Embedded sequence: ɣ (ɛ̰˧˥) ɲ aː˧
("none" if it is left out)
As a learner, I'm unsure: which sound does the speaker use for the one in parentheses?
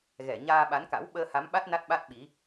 ɛ˧˩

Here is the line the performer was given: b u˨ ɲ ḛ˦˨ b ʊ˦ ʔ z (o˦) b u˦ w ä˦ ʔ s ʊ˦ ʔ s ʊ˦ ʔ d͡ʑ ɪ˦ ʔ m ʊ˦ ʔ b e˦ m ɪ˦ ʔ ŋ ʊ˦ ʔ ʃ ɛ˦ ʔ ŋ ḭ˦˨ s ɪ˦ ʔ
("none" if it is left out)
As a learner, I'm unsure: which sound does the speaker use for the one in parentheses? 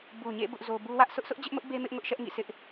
o˦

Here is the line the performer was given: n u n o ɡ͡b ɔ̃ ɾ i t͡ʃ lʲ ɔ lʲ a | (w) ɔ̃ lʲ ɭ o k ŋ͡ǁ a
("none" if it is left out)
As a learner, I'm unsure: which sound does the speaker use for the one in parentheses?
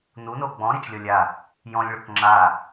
j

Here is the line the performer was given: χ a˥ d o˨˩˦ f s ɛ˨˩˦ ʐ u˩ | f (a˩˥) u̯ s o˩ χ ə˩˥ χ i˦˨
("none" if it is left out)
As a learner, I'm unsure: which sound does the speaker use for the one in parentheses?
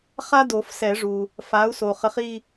a˩˥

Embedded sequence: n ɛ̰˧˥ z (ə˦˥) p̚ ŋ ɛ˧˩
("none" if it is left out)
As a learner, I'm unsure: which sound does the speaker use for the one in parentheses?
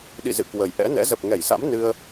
ə˨˩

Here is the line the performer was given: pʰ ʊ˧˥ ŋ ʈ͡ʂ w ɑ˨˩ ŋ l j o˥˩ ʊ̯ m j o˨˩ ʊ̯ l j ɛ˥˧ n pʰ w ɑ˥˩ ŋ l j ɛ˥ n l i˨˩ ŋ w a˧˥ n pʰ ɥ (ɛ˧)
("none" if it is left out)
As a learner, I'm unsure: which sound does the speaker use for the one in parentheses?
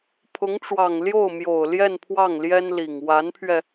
ɛ˧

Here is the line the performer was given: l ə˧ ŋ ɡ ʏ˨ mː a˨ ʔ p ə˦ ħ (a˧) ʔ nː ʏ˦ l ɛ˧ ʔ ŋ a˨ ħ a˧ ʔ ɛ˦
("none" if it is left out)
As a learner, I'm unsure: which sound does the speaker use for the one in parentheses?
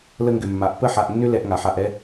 a˧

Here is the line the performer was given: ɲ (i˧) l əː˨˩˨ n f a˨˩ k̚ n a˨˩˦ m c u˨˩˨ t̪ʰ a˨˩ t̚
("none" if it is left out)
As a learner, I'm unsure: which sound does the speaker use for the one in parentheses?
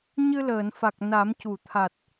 ɨ˧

